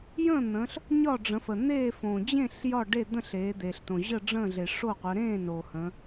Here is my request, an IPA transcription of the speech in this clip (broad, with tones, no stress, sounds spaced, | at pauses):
j ə̃ː˥˨ n̪ ə̃ː˩˧ ɬ | ɲ ɒ˥˨ ɖ͡ʐ ə̃˩˧ f ə˩ n̪ eː˥˨ f õː˩ d͡ʑ ẽ˥˨ ɬ j ɒ˥˨ ɖ e˥˨ d̪ ə̃˥˨ ɬ eː˩˧ d̪ eː˩ ɬ t õ˩ ʑ ə˥˨ ɖ͡ʐ ə̃ː˥˨ ɮ e˩ ʂ o˥˨ qʷ ə˩˧ ɾ ẽː˥˨ n o˩ h ə̃˩˧